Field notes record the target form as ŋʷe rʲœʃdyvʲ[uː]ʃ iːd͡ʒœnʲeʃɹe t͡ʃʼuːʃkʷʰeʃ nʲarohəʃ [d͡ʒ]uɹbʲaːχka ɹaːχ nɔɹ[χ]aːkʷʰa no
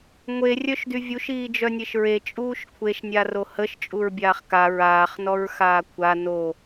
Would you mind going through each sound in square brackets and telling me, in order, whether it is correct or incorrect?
incorrect, incorrect, incorrect

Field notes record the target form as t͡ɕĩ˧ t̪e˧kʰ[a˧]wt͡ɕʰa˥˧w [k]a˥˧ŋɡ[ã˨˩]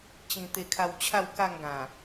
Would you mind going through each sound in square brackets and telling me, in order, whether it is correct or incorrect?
correct, correct, correct

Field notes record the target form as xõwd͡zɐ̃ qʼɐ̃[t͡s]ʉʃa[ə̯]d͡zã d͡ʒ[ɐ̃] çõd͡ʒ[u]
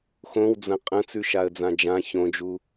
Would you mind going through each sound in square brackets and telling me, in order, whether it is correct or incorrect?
correct, correct, incorrect, correct

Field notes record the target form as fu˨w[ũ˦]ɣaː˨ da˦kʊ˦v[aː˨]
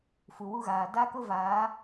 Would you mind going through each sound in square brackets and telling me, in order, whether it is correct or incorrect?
incorrect, incorrect

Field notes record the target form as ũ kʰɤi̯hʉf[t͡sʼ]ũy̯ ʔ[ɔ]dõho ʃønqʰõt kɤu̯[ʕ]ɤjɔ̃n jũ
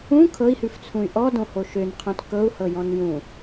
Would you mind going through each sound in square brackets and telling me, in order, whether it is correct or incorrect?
incorrect, correct, incorrect

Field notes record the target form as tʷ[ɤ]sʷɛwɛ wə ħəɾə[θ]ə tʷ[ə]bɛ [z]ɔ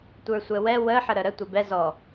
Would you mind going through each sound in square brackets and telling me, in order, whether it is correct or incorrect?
incorrect, incorrect, correct, correct

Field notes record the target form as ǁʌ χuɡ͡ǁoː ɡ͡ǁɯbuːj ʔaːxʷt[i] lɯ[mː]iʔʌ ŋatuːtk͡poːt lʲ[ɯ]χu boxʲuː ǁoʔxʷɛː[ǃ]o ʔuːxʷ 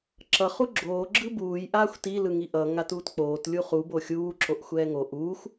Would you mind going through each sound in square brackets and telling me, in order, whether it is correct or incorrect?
correct, incorrect, incorrect, incorrect

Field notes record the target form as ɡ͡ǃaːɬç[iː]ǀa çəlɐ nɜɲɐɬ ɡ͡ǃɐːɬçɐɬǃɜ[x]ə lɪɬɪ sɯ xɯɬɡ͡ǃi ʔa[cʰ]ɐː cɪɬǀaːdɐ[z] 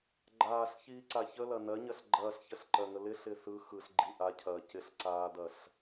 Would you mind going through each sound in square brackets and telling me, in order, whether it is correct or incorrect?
correct, incorrect, correct, incorrect

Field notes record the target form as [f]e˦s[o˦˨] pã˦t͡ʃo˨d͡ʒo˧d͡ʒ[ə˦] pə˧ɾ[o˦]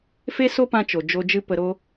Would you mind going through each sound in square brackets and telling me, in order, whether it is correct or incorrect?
correct, incorrect, incorrect, correct

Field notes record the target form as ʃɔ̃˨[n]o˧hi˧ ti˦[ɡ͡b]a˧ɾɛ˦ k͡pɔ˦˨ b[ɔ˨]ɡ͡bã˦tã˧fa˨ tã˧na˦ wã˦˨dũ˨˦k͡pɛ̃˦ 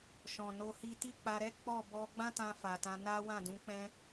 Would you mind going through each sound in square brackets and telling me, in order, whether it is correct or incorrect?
correct, incorrect, incorrect

